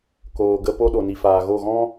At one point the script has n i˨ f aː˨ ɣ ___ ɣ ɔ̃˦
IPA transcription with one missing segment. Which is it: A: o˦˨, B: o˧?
A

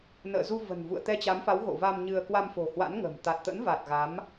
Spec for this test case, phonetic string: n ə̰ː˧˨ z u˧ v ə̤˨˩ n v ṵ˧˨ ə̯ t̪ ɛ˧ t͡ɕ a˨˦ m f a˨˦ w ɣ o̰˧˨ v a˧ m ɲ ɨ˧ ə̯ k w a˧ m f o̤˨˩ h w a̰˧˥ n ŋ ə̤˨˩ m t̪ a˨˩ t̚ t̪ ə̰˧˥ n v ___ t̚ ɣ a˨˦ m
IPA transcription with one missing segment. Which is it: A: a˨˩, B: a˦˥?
A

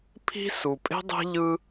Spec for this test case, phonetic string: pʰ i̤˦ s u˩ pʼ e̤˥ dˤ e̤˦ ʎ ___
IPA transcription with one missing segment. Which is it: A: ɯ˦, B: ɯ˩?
A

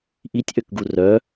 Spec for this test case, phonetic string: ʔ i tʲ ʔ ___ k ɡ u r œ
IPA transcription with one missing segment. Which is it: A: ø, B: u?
A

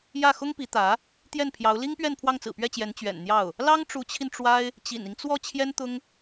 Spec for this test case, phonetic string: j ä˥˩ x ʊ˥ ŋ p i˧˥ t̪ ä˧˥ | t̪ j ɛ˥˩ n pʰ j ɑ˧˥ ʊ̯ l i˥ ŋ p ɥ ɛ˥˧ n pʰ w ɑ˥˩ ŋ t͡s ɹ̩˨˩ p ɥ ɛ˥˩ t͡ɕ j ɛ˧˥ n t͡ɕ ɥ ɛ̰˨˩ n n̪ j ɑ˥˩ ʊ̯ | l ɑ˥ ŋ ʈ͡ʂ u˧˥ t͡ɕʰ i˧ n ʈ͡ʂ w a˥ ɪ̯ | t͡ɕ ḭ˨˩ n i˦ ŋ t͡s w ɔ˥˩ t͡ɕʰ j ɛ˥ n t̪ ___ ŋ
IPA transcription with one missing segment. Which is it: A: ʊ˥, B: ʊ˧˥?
A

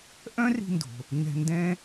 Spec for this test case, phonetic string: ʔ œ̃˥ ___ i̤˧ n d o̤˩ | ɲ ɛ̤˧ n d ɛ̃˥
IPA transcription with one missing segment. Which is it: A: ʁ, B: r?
B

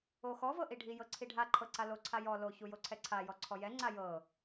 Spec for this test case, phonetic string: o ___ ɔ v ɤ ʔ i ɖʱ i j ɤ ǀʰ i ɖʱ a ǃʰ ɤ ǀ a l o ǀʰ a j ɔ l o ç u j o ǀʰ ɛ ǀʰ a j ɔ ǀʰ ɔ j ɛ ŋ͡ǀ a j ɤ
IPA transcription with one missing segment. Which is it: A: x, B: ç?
A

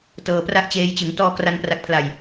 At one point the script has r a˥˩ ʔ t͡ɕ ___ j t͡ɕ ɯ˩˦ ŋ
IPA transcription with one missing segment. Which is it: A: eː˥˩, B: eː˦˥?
B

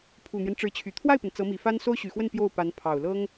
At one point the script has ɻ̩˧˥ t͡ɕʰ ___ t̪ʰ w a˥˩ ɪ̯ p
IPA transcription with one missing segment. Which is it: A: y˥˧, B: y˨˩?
B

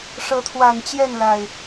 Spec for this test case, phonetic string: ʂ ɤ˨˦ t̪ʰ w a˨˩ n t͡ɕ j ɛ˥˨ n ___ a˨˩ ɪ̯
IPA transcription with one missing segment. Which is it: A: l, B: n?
A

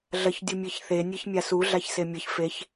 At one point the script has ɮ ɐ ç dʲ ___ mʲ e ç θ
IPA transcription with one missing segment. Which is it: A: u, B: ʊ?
A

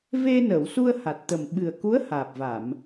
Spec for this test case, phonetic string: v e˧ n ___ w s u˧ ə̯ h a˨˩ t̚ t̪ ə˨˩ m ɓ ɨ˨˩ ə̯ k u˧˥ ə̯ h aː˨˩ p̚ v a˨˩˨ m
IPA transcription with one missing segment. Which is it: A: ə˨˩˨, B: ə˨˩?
A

